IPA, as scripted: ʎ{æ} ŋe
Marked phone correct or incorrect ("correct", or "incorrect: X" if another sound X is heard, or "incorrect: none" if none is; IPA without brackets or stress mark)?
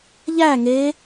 correct